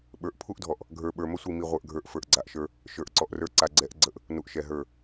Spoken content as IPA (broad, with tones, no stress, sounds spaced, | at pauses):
ɓ ə˞˨ ʔ pʰ u˦ ʔ dʱ ɔ˨ ʔ | ɡʱ ə˞˨ ɓ ə˞˨ m ə˦ sʷ i˨ m i˨ ʁʷ ə˞˨ ʔ ɡʱ ə˞˨ ʔ f ə˞˨ ʔ ɡ͡ǀ a˨ ʔ ʃ ə˞˦ | ʃ ə˞˨ ʔ ǀ ɔ˨ ʔ r ə˞˦ ǀ a˨ ɡ͡ǀ ɛ˨˦ ʔ ɡ͡ǀ ə˨˦ ʔ | n u˨ ʔ ʃ ɛ˨ ɦ ə˞˦˨